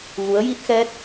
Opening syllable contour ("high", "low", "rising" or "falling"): rising